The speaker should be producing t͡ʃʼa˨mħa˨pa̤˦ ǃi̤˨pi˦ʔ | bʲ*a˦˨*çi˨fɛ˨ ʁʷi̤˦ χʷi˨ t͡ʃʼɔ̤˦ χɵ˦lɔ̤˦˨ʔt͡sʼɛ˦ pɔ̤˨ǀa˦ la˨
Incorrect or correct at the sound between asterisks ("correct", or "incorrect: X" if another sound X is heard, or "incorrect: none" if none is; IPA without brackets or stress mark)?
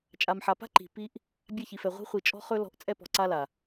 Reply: correct